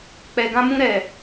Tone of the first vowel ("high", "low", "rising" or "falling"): low